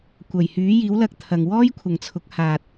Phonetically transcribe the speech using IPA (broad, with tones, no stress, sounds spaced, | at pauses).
kʷ ɐ˨˩ j h yː˨˥ j iː˨˥ w l ɐ˧ k̚ t̪ʰ ɐ˨ ŋ w ɔː˥ j kʷʰ ɐ˨ ŋ t͡sʰ ʊ˨˥ k̚ h aː˨ t̚